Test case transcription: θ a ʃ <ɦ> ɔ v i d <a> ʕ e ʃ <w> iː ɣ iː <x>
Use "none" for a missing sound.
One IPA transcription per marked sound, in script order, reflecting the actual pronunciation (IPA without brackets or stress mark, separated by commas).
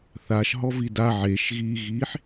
ɦ, a, ɣ, ħ